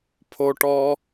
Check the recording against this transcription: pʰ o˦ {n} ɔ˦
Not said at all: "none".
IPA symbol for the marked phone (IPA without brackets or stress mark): ʈ